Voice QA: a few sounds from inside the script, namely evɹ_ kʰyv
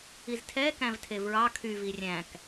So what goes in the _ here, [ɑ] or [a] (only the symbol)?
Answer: ɑ